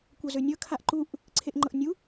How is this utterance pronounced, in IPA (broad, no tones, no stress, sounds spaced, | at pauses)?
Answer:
kʷ ɤ z ø nʲ ɤ kʰ a ʔ ǃ u ʔ | ǀʰ e ʔ ŋ͡ǃ ɤ ʔ nʲ u